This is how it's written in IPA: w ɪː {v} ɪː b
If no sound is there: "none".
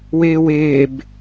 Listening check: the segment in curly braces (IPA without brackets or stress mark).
w